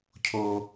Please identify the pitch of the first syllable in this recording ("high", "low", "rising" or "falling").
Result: high